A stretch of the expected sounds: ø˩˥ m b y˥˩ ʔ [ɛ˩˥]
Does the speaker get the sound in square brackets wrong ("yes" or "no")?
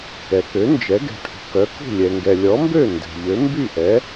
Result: no